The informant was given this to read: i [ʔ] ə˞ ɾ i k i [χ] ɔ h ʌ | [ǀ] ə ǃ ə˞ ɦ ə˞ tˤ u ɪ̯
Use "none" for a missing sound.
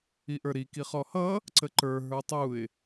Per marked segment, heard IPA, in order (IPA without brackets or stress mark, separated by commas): ʔ, χ, ǀ